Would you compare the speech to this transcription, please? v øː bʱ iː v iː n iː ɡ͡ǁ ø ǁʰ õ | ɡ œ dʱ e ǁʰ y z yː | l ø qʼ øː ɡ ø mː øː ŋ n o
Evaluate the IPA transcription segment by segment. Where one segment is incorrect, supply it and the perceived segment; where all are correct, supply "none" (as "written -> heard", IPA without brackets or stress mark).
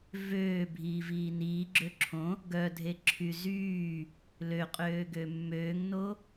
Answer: none